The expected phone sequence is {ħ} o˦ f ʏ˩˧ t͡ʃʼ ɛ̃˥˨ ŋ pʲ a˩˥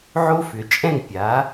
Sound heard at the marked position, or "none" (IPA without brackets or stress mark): ʕ